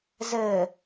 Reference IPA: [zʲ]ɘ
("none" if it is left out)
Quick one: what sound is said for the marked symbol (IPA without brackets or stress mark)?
z